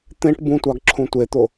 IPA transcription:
t̪ẽʈ bũtʷɑɡ ǁʰũtʷet̪o

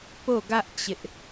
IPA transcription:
po˦˨ɡä˦ʔ t͡ɕɪ˦ʔ

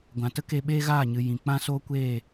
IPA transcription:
ɡʷã˨tə˦ke˧ ɓeː˦ɣaː˦˨ɲɨ˨ jĩ˨ k͡pã˦soː˦kʷeː˦˨

